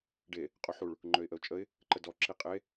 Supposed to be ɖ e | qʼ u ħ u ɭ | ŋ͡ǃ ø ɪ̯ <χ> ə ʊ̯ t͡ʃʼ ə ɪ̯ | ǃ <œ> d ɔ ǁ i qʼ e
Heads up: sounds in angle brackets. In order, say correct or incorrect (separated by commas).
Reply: incorrect, incorrect